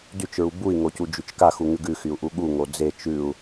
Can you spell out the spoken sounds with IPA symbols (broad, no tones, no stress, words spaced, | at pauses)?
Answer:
dyt͡ʃɹu bui̯ŋocu d͡ʒyt͡ʃkaxu ŋʉɡʉxyu̯ ʔuɠuŋo d͡ze t͡ʃʉu̯